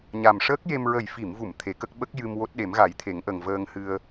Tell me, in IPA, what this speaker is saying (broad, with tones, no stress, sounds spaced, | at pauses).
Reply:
ɲ a˨˩ m ʂ əː˦˥ k̚ j e˧ m ɹ ə˨˩ j f i˨˩˨ m v u˨˩˨ m t̪ʰ e˨˩˦ k ə˦˥ k̚ ɓ ə˦˥ k̚ j ɨ˧ m w o˦˥ t̚ ɗ e˨˩˦ m ɣ a˨˩˦ j t̪ʰ e˨˩˦ ŋ ʔ ə˨˩ ŋ v əː˧ ŋ h ɨ˧ ə̯